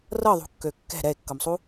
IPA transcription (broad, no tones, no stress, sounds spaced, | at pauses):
r ɤ ðˤ ṳ kː ø kː ɛ̤ ɾ ɛ e̯ kː ɤ m sˤ u